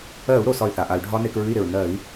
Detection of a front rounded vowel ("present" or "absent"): present